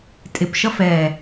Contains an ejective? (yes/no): yes